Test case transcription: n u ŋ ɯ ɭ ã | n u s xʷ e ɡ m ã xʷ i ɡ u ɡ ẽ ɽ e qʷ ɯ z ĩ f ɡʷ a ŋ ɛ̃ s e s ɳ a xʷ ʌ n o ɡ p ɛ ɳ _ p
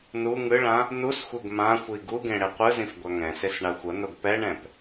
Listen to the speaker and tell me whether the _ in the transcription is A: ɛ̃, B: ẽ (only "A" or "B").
A